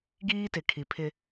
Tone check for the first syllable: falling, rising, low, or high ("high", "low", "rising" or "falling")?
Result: high